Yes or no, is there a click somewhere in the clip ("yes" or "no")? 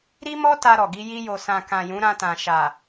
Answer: no